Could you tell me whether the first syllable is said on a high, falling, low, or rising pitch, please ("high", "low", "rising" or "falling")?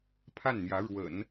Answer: falling